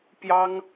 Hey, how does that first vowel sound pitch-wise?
high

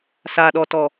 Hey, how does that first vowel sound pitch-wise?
low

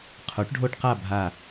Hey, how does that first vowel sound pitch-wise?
rising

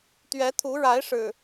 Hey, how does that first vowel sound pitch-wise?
rising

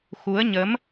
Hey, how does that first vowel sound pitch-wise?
rising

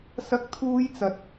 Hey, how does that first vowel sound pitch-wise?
high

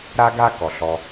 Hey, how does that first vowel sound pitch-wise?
high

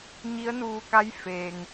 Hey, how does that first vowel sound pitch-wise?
rising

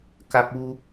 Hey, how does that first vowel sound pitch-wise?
high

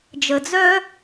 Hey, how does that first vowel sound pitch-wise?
low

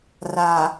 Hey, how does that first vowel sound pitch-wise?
low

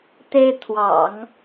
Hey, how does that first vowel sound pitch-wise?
high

